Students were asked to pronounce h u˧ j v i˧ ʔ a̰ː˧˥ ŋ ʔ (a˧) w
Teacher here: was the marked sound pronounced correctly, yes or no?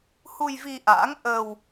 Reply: no